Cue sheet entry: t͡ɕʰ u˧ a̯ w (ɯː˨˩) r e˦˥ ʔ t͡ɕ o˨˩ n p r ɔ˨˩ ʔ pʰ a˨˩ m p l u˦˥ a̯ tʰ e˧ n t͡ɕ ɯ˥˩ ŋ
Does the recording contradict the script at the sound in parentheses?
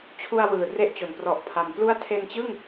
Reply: no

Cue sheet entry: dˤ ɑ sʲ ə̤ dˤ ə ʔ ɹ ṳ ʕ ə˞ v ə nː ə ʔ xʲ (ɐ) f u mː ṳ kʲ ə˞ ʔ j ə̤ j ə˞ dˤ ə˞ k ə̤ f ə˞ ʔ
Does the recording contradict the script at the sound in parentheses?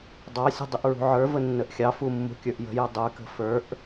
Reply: yes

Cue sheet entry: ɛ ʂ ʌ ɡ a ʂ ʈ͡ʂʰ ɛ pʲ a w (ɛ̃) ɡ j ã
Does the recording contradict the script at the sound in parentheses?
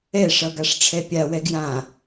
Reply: yes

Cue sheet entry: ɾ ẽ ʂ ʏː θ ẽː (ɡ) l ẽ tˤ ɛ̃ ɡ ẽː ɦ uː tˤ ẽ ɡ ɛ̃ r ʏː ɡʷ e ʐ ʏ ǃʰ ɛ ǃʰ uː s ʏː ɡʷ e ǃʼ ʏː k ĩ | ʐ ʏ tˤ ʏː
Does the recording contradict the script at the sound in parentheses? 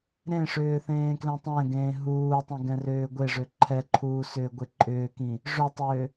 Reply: yes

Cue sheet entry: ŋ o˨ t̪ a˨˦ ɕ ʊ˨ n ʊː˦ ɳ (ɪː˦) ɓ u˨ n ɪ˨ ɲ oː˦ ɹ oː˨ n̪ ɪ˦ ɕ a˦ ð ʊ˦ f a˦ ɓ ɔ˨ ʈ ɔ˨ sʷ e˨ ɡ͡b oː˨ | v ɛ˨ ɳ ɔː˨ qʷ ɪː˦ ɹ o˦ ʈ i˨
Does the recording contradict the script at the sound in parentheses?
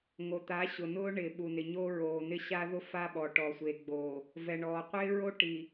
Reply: yes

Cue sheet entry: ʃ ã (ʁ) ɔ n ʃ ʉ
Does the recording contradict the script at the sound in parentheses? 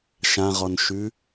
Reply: no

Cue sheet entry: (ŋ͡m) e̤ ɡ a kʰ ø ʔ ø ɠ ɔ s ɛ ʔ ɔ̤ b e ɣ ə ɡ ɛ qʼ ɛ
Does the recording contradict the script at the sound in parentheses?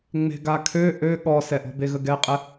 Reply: no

